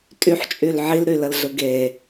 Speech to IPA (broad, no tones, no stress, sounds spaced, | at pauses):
tʼ y ħ t͡ʃʼ y l ʕ i l ɾ y l ə l ɮ ɯ ɡ e